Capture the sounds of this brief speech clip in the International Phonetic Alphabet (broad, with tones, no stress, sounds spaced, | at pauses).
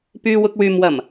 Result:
p yː˧ w ʊ˧ k̚ w yː˨ m w ɐ˨˩ m